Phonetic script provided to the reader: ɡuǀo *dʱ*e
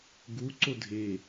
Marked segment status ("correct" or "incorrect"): correct